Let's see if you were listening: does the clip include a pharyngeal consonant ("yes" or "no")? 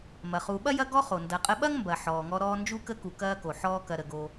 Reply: yes